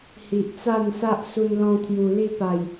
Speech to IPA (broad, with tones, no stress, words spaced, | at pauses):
hi˨ʔt͡sa˥˧nsa˦ʔ su˧nlɔ̃˧t̪ʰju˨˩ li˥˧pa˨˩j